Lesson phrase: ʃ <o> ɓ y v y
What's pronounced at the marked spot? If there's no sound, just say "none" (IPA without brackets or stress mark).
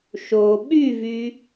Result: o